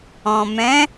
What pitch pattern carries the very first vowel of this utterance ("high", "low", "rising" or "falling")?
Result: low